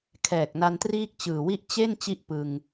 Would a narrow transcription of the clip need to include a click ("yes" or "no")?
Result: no